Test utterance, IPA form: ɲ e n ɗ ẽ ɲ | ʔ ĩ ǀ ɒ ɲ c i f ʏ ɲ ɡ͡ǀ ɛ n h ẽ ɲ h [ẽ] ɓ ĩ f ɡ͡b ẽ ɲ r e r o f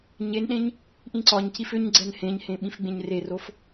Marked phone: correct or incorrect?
correct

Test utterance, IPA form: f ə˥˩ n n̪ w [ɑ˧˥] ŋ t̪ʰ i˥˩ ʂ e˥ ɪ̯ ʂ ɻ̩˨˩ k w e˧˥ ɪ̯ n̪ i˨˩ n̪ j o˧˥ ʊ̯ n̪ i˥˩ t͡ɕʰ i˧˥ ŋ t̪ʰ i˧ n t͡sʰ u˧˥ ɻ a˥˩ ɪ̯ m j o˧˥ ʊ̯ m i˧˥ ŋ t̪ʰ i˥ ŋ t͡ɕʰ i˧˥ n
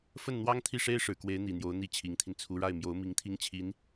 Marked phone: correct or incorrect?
incorrect: ɑ˥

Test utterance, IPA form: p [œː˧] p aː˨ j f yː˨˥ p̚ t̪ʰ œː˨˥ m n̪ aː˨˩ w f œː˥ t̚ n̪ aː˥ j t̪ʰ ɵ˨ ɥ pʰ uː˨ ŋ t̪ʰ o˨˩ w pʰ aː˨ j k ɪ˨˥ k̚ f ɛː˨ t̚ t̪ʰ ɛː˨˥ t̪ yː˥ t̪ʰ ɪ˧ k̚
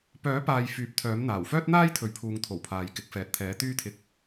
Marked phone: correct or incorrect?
incorrect: œː˨˥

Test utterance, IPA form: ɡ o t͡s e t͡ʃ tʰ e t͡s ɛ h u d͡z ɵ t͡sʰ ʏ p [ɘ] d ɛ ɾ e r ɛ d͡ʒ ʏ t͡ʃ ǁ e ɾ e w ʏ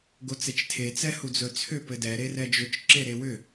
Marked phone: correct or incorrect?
correct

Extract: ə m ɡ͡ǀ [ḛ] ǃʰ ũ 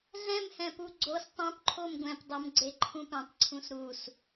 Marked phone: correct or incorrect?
incorrect: e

